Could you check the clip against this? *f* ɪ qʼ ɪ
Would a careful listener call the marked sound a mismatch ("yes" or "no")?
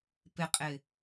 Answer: yes